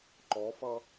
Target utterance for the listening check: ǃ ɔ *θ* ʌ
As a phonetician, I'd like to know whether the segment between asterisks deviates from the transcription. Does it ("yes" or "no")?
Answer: yes